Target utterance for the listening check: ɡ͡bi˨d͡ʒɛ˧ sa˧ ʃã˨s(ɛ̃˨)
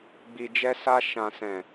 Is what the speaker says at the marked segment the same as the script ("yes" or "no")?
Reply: yes